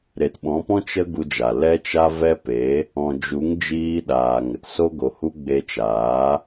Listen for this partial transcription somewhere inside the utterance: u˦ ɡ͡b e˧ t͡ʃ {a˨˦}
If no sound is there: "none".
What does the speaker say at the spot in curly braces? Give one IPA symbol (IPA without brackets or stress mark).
aː˨˦